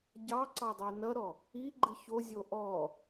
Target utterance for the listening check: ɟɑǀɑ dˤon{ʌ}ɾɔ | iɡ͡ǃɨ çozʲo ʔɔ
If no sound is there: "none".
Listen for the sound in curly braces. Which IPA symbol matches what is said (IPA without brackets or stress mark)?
ʌ